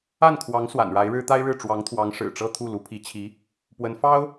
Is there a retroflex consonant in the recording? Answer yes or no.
yes